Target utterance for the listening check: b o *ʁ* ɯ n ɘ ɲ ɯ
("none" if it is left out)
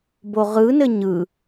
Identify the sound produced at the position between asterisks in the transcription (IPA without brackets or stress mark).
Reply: ʁ